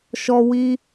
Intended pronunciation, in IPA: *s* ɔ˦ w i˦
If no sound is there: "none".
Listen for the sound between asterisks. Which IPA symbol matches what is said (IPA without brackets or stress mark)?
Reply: ʃ